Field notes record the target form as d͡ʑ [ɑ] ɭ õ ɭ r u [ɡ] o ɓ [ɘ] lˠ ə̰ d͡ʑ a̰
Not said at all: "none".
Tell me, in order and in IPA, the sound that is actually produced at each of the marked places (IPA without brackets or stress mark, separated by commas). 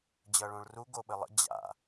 ʌ, ɡ, ɘ